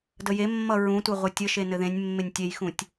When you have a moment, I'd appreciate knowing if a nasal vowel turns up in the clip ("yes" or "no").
yes